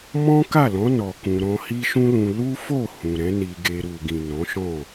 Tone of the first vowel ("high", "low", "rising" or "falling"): high